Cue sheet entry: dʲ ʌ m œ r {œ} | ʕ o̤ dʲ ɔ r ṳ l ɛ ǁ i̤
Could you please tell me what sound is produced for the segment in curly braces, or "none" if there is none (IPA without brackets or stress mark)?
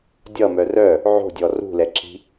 œ